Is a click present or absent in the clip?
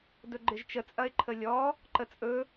present